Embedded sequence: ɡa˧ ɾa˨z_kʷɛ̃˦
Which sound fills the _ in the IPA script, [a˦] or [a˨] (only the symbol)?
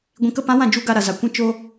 a˨